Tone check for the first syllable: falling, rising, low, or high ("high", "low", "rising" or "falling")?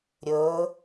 rising